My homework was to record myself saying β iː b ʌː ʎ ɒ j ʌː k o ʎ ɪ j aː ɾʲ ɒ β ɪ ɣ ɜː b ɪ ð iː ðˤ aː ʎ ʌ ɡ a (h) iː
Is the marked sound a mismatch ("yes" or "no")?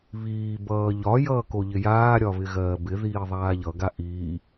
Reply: yes